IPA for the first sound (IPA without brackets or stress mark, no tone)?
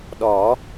ɗ